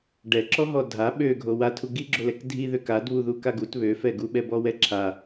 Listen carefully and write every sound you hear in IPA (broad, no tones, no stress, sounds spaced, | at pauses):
ɖ ɛ ǁ ɔ ɦ ɔ dʱ a ɓ ø ɡʱ o w a tʰ u ɡ i ɡ͡ǁ o l ɛ k dʱ i ð ø k a d β u ð u k a ɡ u t β ø f ɛ ɡ u ɓ ɛ b ɔ w ɛ ǁʰ a